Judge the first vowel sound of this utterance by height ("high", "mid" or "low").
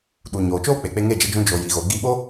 high